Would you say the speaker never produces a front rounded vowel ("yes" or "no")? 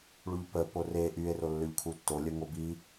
no